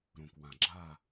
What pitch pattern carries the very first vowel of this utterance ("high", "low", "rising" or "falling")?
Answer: low